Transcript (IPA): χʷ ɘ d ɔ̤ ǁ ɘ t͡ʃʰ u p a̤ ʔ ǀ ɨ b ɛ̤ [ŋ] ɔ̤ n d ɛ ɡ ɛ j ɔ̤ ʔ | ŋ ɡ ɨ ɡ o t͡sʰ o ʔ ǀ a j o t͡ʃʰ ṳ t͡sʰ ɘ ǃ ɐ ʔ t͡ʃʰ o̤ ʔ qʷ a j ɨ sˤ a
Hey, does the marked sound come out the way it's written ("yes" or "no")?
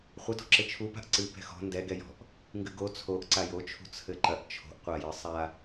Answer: no